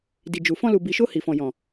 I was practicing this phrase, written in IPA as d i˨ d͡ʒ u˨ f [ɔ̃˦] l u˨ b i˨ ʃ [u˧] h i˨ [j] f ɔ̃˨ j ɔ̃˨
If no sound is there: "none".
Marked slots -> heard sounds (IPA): ɔ̃˧, o˧, none

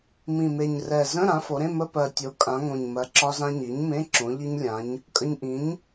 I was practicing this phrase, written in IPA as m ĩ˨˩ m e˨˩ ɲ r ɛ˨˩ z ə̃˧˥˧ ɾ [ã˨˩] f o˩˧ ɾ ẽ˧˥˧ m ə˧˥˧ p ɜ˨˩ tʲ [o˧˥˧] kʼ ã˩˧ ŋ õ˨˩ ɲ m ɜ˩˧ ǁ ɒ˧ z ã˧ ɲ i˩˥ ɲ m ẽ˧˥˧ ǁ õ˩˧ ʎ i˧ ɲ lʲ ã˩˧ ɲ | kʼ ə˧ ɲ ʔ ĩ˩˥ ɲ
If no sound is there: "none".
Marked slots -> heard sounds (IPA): ã˩˥, o˩˧

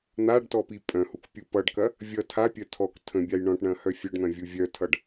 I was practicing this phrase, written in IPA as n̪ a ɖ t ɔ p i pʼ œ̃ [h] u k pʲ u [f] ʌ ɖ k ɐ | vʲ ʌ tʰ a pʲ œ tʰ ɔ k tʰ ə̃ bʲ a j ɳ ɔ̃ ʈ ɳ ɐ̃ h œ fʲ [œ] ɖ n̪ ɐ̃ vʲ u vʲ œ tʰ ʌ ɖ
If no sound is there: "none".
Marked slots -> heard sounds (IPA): h, p, œ

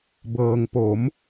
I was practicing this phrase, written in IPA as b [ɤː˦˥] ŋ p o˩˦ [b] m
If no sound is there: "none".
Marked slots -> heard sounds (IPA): ɤː˧, none

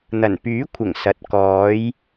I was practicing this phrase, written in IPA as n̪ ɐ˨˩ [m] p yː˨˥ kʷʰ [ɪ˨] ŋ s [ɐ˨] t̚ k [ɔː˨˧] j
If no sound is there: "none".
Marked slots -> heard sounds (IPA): n, ɪ˨˩, ɐ˨˥, ɔː˨˧

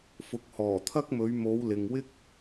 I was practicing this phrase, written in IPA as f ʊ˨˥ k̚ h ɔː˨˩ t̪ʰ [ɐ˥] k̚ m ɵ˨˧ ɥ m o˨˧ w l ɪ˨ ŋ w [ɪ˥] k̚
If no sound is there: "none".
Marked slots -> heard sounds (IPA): ɐ˥, ɪ˥

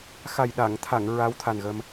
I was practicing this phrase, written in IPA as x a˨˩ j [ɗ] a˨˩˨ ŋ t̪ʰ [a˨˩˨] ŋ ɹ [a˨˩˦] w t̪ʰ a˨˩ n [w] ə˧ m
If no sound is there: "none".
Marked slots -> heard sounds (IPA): ɗ, a˨˩˨, a˧˥, ɣ

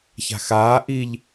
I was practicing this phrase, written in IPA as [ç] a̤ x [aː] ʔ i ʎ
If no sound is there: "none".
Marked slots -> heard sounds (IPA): ç, aː

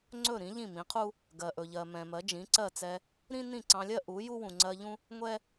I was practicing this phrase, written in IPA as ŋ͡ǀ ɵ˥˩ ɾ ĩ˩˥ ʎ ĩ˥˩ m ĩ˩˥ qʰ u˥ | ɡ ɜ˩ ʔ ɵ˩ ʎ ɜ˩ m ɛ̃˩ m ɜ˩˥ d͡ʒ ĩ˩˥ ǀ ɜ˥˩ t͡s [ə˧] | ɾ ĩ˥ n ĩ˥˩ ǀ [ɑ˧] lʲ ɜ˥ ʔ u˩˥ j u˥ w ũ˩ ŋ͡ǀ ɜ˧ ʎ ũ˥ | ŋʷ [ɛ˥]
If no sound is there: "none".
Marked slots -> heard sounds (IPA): ɛ˧, ɑ̃˧, ɛ˥

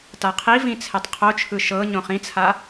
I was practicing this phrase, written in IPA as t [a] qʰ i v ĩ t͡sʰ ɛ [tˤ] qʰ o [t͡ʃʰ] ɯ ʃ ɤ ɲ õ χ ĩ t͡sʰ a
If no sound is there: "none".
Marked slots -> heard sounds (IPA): a, tˤ, t͡ʃʰ

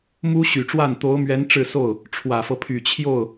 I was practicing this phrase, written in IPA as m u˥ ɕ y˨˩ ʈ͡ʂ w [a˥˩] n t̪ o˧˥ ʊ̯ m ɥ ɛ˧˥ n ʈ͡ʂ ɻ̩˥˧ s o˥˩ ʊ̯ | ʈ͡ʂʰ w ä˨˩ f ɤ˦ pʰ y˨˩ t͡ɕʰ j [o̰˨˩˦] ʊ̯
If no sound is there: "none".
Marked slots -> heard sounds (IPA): a˥˩, o˥˩

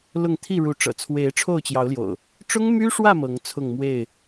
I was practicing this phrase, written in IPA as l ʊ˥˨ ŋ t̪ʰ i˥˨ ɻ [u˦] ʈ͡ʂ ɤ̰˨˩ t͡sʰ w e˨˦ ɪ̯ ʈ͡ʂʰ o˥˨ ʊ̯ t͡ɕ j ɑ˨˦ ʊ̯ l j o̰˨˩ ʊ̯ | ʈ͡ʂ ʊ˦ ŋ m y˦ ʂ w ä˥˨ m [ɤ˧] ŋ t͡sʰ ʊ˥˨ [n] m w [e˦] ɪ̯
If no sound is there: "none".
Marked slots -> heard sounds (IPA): u˨˦, ɤ˨˦, ŋ, e˥˨

